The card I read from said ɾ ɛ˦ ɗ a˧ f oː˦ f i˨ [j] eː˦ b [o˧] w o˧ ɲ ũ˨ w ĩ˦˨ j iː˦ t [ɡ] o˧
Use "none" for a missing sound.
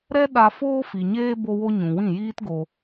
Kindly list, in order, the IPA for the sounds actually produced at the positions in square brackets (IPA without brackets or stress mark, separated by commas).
ɲ, o˧, ɡ